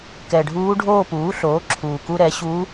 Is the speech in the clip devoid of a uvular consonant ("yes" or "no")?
yes